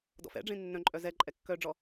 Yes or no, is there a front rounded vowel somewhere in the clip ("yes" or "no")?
yes